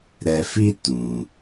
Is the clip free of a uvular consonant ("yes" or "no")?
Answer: yes